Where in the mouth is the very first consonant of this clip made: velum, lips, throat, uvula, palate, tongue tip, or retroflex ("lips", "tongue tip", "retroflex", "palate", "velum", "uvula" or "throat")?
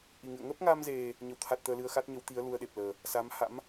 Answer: throat